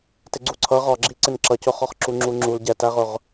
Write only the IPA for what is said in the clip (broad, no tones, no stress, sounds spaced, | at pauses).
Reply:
t ɪ ɡ͡ǀ u ǀʰ ʌ ʁ ɒ ɡ͡ǁ i ǀ ɪ n ǁ ʌ c ʊ χ ɒ χ ǁ u ŋ͡ǁ u ŋ͡ǁ u l ɟ ɛ t æ ʁ ʊ ʁ